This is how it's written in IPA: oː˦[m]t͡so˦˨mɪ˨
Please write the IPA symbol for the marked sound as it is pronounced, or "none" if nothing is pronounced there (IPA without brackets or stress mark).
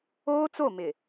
none